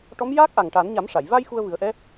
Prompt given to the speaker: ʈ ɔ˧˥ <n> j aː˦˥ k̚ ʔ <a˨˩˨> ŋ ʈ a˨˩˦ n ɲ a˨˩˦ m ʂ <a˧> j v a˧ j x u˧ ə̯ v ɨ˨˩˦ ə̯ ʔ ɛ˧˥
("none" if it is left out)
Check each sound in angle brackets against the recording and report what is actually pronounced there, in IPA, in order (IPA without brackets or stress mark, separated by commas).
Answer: m, a˨˩, a˨˩˨